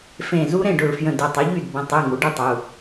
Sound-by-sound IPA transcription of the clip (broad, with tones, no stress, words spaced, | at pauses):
fẽ˧˩ zu˦˥ɾẽ˥˩ɖʊ˧˩ɭfjə̃˧˩ dʊ˩˧˩tˤɪ˩˥ʎy˥˩d bə̃˩˧˩tˤy˩˧˩ ŋu˩˥ɖe˦˥tˤu˩˧˩